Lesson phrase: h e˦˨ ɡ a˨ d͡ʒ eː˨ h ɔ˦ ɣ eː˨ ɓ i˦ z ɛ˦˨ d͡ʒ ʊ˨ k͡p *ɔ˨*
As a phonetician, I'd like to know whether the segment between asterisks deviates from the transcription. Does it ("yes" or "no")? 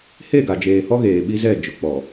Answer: no